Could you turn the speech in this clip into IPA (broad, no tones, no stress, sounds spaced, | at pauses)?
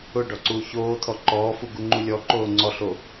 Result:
ʊ ɖ ɔ ǀ uː ç oː t̪ʰ ɔ ǃ ɔː f u ɡ u ŋ͡ǃ u lʲ ɔ ǃ oː ŋ͡ǀ ɔ ɬ o